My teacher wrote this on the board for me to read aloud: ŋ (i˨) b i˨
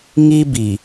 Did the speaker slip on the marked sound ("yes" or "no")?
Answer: yes